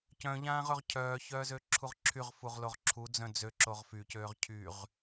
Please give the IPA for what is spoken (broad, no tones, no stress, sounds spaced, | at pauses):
c œ̃ ʎ ãː ʁ ɵ ʁ cʰ œː ç œː z ø ǁʰ u ʁ ǁʰ y ʁ f u ʁ l o ʁ ǁʰ u d͡z œ̃ d͡z ø ǁ o ʁ f y c øː ʁ cʰ y ʁ